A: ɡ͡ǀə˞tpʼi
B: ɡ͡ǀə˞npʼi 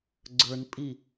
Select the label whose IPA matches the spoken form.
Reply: B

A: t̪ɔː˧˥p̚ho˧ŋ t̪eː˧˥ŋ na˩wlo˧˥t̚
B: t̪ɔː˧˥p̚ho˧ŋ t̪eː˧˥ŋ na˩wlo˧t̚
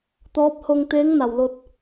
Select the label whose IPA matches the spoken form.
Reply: B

